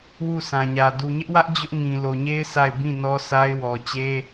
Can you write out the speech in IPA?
w u˦˨ sʰ ã˨ ɲ ä˨ d u˨ ɲ ɪ˦ ʔ w ä˦ ʔ d͡ʑ ʊ˦ ʔ ŋ ĩ˨ l o˨ ɲ e˦ ɪ̯ s a˦˨ ɪ̯ b ĩ˦˨ n ɔ˦ s a˦ ɪ̯ w ɔ˨ t͡ɕ e˦

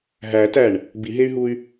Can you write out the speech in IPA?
ɦ æ t æ ɳ | b i ɦ e y̯ ɦ u y̯

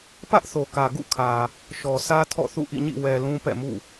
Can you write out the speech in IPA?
p ä˦ ʔ θ o˨ k ä˨ ɡ ṵ˦˨ kʰ ä˨ | ʃ ɔ˨ sʰ ä˦ tʰ ɔ̰˦˨ θ ṵ˦˨ ʔ ḭ˦˨ ɲ ḭ˦˨ w ɛ˨ l ũ˦ p ɛ̰˦˨ m ṵ˦˨

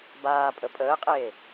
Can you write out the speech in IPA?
b aː pʼ ə pʼ əː qʼ eː

